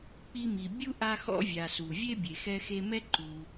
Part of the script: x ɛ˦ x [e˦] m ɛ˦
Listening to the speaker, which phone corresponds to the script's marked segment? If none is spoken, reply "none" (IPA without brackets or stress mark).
e˦